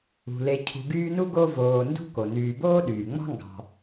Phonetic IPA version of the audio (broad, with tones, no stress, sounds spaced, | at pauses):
ṳ˩ l e˨ cʰ ṳ˨ ɡ yː˦ n u˥ ɡ o˦ v oː˨ n d ṳ˥ k o˩ n yː˨ b oː˥ ɗ yː˩ ŋ͡m ɑ̤˥ ŋ ɡ ɑ̤˨